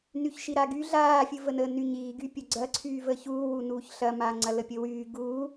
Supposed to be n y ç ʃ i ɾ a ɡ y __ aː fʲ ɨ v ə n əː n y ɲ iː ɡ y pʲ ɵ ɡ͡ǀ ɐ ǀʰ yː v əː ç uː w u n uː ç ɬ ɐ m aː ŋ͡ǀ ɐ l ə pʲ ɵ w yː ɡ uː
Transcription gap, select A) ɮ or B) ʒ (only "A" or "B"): A